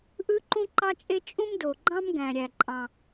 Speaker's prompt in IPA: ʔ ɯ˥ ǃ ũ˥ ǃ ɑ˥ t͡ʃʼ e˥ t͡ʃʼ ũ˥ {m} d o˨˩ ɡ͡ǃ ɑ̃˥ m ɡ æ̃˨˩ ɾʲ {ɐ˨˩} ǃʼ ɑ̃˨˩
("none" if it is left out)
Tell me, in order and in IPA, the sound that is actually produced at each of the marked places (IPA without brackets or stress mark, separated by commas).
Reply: m, æ˨˩